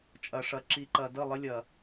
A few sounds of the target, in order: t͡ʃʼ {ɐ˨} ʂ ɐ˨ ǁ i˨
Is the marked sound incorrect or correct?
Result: correct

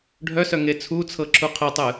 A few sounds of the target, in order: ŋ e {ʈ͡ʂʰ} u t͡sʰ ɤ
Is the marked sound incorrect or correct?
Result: incorrect: t͡sʰ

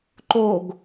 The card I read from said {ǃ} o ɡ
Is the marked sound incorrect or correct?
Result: correct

